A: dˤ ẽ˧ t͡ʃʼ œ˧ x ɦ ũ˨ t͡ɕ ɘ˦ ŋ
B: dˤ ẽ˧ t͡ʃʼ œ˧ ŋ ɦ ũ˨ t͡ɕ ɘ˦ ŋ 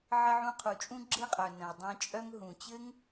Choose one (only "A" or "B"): B